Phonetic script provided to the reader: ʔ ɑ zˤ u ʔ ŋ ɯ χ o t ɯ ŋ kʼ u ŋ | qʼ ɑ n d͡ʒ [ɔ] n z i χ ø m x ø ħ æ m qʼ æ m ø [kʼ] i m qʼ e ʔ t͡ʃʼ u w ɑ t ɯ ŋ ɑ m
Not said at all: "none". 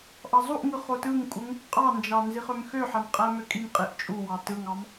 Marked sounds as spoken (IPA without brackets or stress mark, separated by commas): ɑ, kʼ